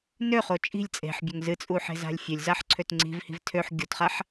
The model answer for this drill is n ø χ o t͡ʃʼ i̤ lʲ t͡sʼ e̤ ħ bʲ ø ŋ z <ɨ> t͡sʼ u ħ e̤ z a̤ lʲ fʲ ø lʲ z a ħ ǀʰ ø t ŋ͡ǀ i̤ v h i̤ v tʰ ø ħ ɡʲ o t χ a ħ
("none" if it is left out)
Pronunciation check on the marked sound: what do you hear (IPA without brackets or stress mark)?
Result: ɨ